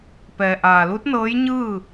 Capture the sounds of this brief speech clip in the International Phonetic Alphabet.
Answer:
p ɛː˩ ʔ aː˩ l u˧˥ t̚ n ɤː˧˥ j ɲ ɯː˥˨

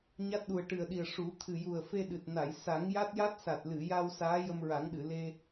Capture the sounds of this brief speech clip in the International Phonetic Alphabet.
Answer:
ɲ a˦˥ t̚ ɗ u˨˩ ə̯ ʈ ɨ˨˩ ə̯ ɗ i˨˩ ə̯ ʂ u˨˩˦ t̪ʰ ɨ˨˩ j u˨˩ ə̯ f e˧ ɗ ɨ˨˩ t̚ n a˨˩˨ j s a˨˩˦ ŋ j a˦˥ t̚ j a˦˥ t̚ s a˨˩ t̚ l ɨ˨˩˨ j a˧ w s aː˧˥ j ə˧ m ɹ a˨˩˦ ŋ ɗ ɨ˨˩˨ l e˧

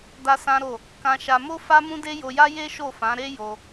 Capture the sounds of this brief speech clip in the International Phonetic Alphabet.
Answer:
d a˦ s ã˦ ɾ o˦˨ | k ã˧ ʃ a˧ m o˦ f a˦ m ũ˦ d e˦ j o˧ j a˦ j e˦ ʃ o˦˨ f ã˨˦ ɾ e˦ j o˧

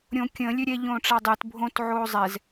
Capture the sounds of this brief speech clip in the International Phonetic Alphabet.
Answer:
ɾʲ õ kʲ ə̃ lʲ ø ɾʲ ɛ ʎ õː ʈ͡ʂ a dˤ e t bʱ õ t ʕ oː zˤ ɛ z

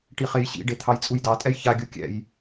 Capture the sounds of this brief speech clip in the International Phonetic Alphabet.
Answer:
ʈ i χ e j ɕ ḭ ɖ e t̪ʰ ɑ j t͡sʼ u j d ɑ tʼ ɛ j ç a ɡʲ u kʲ ɛ̰ j

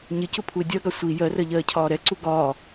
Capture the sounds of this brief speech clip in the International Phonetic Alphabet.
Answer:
ɲ ɪ c ʊ pʰ u ɪ̯ dʲ ɜ ɡ ɑ sʷ i j ɜ r ɜ ʎ ɜː cʰ ɒː ɾ ɛ ǀ u ɡ ɒː

